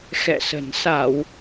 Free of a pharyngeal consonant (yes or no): yes